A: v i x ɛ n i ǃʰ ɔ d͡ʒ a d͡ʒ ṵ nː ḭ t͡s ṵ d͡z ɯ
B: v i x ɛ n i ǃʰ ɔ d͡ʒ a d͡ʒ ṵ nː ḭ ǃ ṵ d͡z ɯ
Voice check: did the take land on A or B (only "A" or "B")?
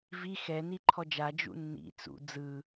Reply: A